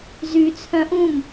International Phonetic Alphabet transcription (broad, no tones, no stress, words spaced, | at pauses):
zy t͡sʰœ̃ʔũm